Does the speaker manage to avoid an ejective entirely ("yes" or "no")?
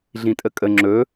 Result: no